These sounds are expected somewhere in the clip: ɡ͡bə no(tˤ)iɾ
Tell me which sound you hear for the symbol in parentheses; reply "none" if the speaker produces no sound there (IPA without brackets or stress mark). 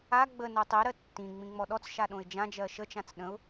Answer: tˤ